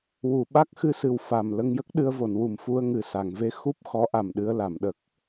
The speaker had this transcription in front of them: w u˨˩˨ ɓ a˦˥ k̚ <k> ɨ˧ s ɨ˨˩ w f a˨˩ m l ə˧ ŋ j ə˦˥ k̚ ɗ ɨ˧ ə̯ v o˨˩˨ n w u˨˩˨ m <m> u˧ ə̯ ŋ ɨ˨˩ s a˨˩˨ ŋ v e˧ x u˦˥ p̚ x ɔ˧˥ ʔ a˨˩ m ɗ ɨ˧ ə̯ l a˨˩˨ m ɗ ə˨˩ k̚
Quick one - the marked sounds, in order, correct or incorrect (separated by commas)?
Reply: incorrect, incorrect